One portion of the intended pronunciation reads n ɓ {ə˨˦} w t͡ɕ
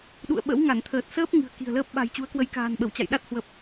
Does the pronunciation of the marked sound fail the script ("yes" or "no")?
yes